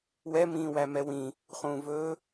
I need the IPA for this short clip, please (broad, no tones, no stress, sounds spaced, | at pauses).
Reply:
w ɛ m ĩː w æ m ɛ w ĩ | χ ũː v ɵː